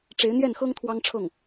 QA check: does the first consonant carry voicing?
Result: no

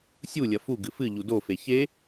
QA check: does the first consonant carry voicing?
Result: no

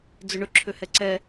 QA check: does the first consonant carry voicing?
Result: yes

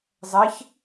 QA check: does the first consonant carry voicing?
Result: yes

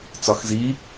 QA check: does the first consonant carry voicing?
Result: no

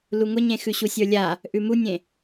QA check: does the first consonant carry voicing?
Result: yes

